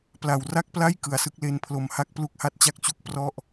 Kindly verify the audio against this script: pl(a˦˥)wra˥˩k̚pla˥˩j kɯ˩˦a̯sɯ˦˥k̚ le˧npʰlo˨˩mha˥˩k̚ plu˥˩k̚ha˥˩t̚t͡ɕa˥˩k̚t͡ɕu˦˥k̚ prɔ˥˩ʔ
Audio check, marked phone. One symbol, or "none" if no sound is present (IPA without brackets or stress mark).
a˨˩